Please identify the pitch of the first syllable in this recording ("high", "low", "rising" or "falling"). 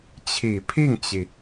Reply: low